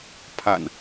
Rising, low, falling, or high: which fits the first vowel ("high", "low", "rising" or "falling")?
low